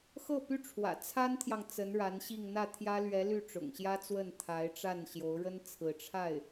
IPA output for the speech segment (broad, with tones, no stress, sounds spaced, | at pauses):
x ɤ˥˩ p y˥ ʈ͡ʂʰ w ä̰˨˩ t͡sʰ a˥ n t̪ʰ j ɑ˨ ŋ t͡s ə˧˥ n ɻ a˧˥ n ɕ i˥˧ ŋ n̪ ä˥˩ t̪ʰ j ä˥ l ɥ ɛ˧˥ l y˥˩ ʈ͡ʂ ʊ̰˨˩ ŋ ɕ j ä˥ t͡s w ə˥˩ n t̪ʰ a˧˥ ɪ̯ ʈ͡ʂ a˥˩ n ɕ j o˧˥ ʊ̯ ɻ ə˥ n t͡sʰ ɹ̩˧˥ ʈ͡ʂʰ a˥˩ ɪ̯